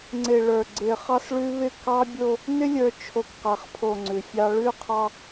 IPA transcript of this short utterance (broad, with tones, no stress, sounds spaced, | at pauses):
ŋ͡ǀ ɪ˨ ɭ ə˞˨ ɡ͡ǀ ɪ˨ χ ɑ˦ s ɭ ʉ˦ β ɪ˦˨ k ɑ˦ bʲ o˦ | n ɪ˦ lʲ ə˞˨ t͡ʃʰ o˨ k q a˨ χ pʰ o˨ ŋ͡ǀ ʉ˨ fʲ ɑ˦ ɭ ʉ˦ qʰ ɑ˦